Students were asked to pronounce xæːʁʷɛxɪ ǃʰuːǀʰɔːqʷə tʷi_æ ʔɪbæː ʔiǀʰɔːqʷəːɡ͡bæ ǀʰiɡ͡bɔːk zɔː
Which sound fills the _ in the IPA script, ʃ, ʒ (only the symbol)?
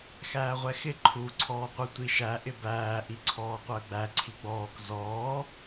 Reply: ʃ